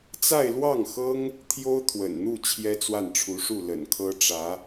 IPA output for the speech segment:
t͡s a˥˧ ɪ̯ l w ɑ˥˩ ŋ x ɤ˥ ŋ | t̪ʰ j o˥ ʊ̯ t̪ʰ w ə̰˨˩ n n̪ u˥˩ t͡ɕʰ j ɛ˥ t͡s w a˥˩ n ʈ͡ʂʰ u˧˥ ʂ u˥˩ l ə̰˨˩ n kʰ ɤ˥ ʈ͡ʂ ä˧˥

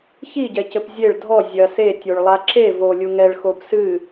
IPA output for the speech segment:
ç i ɟ ɛ c ɘ p zʲ e ɭ dʱ ɔ zʲ ɐ s e tʲ o ɭ lˠ a ǁ e v o lʲ u ŋ ɛ ɭ x o p s ɨ

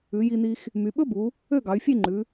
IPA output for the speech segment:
ʉ˩˧ j i˧ n i˧ x | m y˩˧ ɓ ɵ˥ b u˩˧ | ø˥˧ ɡ ɑ˩˧ y̯ fʲ e˥˧ ŋ͡ǃ ʉ˩˧

